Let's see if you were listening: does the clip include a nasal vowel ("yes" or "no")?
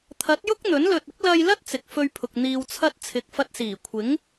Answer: no